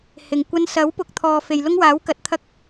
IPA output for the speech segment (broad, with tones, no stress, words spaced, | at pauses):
hɪ˨ŋ kʷɐ˧nsɐ˨˥wpʊ˨k̚ t̪ʰɔː˨ fe˨jlʊ˥ŋwaː˨˥wkɐ˨˥t̚ t̪ʰɐ˥k̚